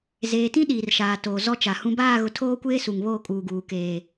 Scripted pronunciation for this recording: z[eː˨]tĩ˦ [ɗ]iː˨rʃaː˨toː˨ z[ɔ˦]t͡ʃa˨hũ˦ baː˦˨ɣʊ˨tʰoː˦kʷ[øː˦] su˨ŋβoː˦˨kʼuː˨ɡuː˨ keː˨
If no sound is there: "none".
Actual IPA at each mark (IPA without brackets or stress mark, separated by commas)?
eː˨, ɗ, ɔ˦, eː˦